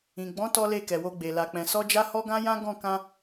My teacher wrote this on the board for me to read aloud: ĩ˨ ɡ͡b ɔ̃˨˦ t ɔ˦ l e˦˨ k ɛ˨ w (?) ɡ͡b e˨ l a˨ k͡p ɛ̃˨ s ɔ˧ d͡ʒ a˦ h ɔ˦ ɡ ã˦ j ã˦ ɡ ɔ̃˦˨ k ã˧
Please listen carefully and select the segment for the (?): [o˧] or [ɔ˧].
o˧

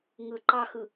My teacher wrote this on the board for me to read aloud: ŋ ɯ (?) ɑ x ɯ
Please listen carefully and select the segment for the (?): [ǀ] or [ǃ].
ǃ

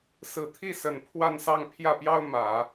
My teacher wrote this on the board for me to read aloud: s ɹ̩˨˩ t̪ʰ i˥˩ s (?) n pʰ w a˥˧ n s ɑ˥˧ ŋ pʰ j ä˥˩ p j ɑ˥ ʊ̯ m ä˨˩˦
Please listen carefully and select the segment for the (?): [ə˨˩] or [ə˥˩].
ə˨˩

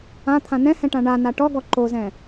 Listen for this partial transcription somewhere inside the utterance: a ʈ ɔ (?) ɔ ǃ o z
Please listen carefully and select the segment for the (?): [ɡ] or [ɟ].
ɡ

